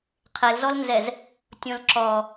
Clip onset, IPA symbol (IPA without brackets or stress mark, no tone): qʰ